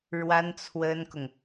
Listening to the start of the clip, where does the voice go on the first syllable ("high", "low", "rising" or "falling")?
high